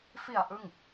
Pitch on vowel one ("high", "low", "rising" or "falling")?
low